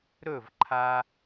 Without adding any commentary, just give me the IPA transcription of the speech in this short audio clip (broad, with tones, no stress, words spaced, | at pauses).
ɾɵ˦˨vǃʰa˧